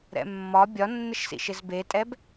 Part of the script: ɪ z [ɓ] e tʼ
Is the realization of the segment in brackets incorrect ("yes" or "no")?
yes